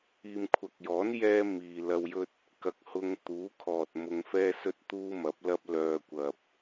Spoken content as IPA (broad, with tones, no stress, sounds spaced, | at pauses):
iː˨ m kʷʰ ɐ˨ k̚ j ɔː˨˥ n j ɛː˥ m iː˨ l ɐ˧ w j ɵ˥ t̚ | k ɐ˨ k̚ h ʊ˧ ŋ t̪ uː˨˥ kʰ ɔː˨ t̚ m ʊ˧ ŋ f ɛː˥ s ɵ˥ t̚ t̪ uː˥ m ɐ˨˥ p̚ l ɐ˥ p̚ l œː˧ kʷ ɐ˨ p̚